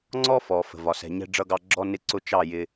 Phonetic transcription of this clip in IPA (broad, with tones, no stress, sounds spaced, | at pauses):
ŋ͡ǀ ɔ˦ f ɔ˨ f ə̤˨ v ɒ˨ s ɛ̤˨ ɲ ɛ̤˧ ɖ͡ʐ ʌ˧ ɡ ɑ˧ ɡ͡ǁ ɔ˧ n ɪ˧ ǀ ʊ˧ t͡ʃ ɑ˦˨ j ɪ˧